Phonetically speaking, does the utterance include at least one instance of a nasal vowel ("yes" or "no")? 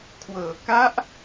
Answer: no